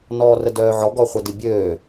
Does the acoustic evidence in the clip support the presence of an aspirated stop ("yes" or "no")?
no